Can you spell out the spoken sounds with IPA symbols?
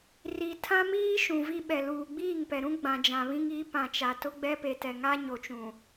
r i˨ tʰ ã˦ m iː˦ ʃ ũ˨ v i˦ ɓ ɛ˨ l uː˨ ɡ͡b iː˦˨ ŋ p ɛ˨ ɾ ũ˦ ɡ͡b ã˨ d͡ʒ ã˨ β ĩ˦ ŋ i˨˦ p ã˨ t͡ʃ a˨ t ʊ˦ ɡ͡b ɛ˦ p e˨ t ɛ˨ ŋ a˦ ɲ o˨ t͡ʃ ũ˨

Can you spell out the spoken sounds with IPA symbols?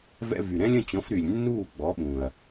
v ɛ̰˧ v y˩ ɾ ɛ̃˥ lʲ ə̃˥˩ t͡ɕ ɔ̃˩˥ f ɾ y˩ lʲ nː uː˥˩ ɡ͡b ɔ˩˥ ɓ ũ˩ ɐ̯

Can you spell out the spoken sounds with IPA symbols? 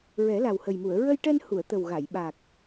ɹ ɛ˨˩˦ l a˨˩ w h ə˨˩ j m u˨˩˨ ə̯ ɹ ə˧ j ʈ ɛ˧ n h u˨˩˨ ə̯ t̪ ə˨˩ w ɣ a˨˩˨ j ɓ a˨˩ k̚

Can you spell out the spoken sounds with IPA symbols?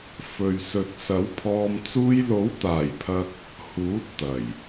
f ɵ˨ ɥ s ɵ˨ t̚ s ɐ˨˥ w pʰ ɔː˧ m t͡s uː˧ j l o˨˥ w t̪ aː˨˩ j pʰ ɐ˧ k̚ | h uː˨˥ t̚ t̪ ɐ˨˩ j

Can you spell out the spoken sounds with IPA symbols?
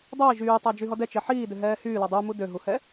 dˤ œ i̯ ʒ yː tˤ a d͡ʒ y ɦ ɔ d ɛ t͡ʃ ɛ ħ iː d ø ɦ ɛː h yː l ɔ dˤ u m u d ø ɦ u h ɛ

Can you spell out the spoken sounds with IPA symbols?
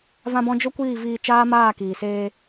v ã˧ b ɔ̃˧ d͡ʒ o˦ kʷ iː˦˨ v iː˧ t͡ʃ aː˦ m aː˦˨ k iː˨ s eː˧

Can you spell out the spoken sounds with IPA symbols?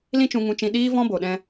l ĩ˦ t͡ʃ ũ˧ ŋ ũ˧ t͡ʃ ĩ˧ ɗ iː˦ v ɔ̃˦ b o˨ ɗ ɛ̃˧

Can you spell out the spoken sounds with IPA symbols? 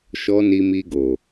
ʃ ɔ˧ n i˧ m i˧ ɡ o˨

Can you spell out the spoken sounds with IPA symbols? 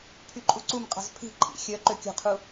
pʰ y ǃʼ u ǀ u m qʼ ɑ̤ z pʰ i̤ ǃʼ ḭ xʲ œ ǃ ø kʲ o̤ qʰ u

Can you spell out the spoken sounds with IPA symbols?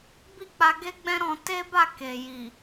b i˦ k͡p a˧ ɡ e˦ ɡ͡b ɛ̃˦ ɾ ɔ̃˧ t e˦ b a˦˨ k e˨ j i˨

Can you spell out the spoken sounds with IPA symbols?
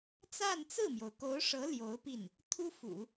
t͡s a˥˧ n t͡s ɹ̩˥˩ m j o˩ ʊ̯ k o˧˥ ʊ̯ ʂ ɤ˧˥ l j o˧˥ ʊ̯ p i˥˩ n | t̪ʰ u˥ f ṵ˨˩˦

